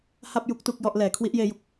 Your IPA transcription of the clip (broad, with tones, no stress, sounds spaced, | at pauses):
h a˥˩ p̚ j u˦˥ k̚ t u˥˩ k̚ j ɔ˥˩ ʔ l ɛː˩˦ kʰ w i˦˥ ʔ j eː˦˥ j u˨˩ k̚